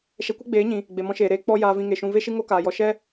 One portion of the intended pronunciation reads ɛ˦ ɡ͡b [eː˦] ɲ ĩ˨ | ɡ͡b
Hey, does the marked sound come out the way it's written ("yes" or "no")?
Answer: no